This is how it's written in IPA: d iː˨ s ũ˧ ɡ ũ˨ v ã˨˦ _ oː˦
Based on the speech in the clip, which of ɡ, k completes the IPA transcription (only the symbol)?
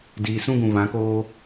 k